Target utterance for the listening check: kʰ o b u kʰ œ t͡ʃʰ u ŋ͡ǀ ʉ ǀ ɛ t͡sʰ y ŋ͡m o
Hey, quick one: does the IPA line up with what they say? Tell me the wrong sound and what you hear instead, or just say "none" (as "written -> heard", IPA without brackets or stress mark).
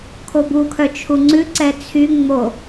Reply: none